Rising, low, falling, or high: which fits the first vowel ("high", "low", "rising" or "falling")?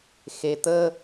low